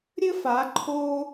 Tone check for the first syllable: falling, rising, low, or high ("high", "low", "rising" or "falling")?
high